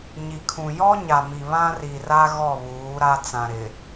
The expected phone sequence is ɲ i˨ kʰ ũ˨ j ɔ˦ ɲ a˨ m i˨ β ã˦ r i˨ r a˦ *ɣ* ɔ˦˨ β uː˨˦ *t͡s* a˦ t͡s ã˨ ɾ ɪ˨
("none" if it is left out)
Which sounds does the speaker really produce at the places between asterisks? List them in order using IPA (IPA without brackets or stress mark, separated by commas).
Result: ɣ, ɾ